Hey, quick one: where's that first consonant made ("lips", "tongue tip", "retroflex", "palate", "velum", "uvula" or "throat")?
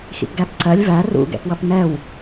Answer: velum